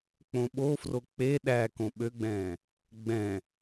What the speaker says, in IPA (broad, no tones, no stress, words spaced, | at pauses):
k͡põɓofro k͡pe ɗækõ ɓøɡ͡bɛ̃ː | ɡ͡bɛ̃